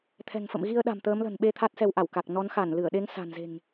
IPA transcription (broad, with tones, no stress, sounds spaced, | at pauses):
t̪ʰ ɛ̤˨˩ ŋ f ə̰˧˨ m ɣ i˧ ə̯ ɗ a̤˨˩ m t̪ əː˨˦ m l ə̤˨˩ n ɓ e˧ t̪ʰ a˦˥ t̚ s ɛ˧ w ʔ a˧˩ w k a˨˩ k̚ n ɔ˨˦ n x a˧˩ n l ɨ˧˩ ə̯ ɗ e˨˦ ŋ s a̤˨˩ n z e̤˨˩ ŋ